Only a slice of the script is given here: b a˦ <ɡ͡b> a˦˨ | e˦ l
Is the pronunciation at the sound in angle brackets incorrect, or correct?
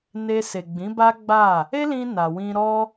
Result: correct